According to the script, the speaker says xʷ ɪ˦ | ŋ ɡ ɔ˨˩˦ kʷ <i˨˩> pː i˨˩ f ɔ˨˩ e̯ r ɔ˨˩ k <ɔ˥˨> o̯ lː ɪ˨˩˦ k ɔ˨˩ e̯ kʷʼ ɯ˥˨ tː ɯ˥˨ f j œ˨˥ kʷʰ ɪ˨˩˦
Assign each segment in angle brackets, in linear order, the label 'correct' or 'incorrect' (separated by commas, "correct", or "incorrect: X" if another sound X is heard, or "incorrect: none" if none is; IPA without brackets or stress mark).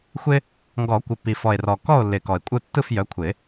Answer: incorrect: ɪ˨˩, correct